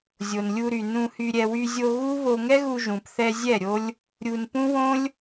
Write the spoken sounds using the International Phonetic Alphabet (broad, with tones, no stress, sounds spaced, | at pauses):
zʲ o˨ n lʲ u˧ ɾ y˨ n ũ˧ h y˧ ɾʲ ɛ˧ w y˧ zʲ o˧ ɣ u˦ β o˧ ŋ ɛ˦ ɣ u˧ ʒ ũ˨ p θ ɛ˧ zʲ ɛ˦˨ ɾʲ o˦ lʲ | ɾʲ u˧ n p ũ˦ w õ˦ lʲ